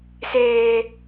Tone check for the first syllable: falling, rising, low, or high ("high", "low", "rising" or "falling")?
high